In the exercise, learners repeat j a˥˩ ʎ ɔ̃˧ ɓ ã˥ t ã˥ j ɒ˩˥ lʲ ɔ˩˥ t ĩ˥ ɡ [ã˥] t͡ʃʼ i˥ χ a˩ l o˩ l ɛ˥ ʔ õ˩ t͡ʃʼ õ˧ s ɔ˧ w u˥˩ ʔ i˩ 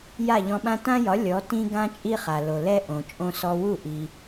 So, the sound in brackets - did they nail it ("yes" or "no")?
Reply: yes